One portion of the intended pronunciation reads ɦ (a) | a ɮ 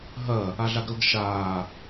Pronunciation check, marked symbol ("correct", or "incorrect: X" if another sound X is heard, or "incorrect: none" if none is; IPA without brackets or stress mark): incorrect: ɐ